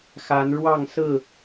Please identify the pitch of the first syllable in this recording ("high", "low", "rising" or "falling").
rising